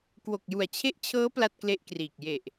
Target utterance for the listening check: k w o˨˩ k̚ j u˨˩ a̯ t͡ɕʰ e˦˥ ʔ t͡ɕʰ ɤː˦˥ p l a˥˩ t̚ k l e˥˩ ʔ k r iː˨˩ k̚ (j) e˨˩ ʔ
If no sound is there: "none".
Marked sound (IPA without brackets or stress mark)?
j